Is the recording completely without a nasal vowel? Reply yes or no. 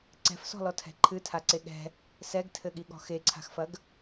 yes